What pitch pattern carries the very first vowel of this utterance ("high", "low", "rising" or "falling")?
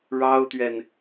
high